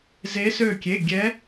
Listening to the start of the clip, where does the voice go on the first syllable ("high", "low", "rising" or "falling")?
rising